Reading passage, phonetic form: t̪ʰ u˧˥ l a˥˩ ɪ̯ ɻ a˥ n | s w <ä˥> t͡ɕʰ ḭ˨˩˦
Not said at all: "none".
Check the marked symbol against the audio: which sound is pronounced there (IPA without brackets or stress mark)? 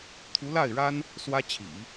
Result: ä˥